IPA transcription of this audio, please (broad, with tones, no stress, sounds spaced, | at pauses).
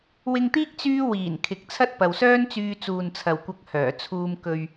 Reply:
w ɪ˧ ŋ t̪ iː˥ k̚ t͡s yː˥ w iː˨˩ n kʰ ɪ˨ k̚ t͡sʰ ɐ˥ t̚ p ɐ˨ w s œː˥ n t͡s yː˧ t͡s uː˨ n t͡sʰ ɐ˨ w kʷ ɐ˧ k̚ h œː˨˩ t͡sʰ uː˧ m k ɵ˧ ɥ